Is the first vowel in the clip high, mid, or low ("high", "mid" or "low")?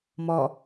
mid